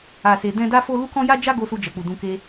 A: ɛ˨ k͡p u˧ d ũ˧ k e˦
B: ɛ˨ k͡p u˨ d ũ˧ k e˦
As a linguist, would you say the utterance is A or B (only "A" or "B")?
B